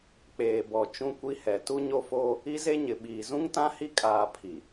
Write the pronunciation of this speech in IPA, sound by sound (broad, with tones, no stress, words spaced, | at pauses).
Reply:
k͡peː˨ bɔ˨ t͡ʃũ˦kʷi˦hɛ˨ tu˦ɲo˦foː˦ | i˦ze˦ɲɪ˨ ɓiː˨zũ˦ŋtã˦hi˦ kʼaː˨ pʰi˨